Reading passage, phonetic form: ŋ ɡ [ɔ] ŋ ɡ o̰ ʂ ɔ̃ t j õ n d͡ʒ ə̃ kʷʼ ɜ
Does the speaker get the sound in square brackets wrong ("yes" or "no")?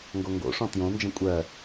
yes